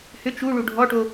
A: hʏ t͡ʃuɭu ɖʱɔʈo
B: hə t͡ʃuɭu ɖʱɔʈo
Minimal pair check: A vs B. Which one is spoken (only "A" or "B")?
A